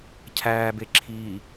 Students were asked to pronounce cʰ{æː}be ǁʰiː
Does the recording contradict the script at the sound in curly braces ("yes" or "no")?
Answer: no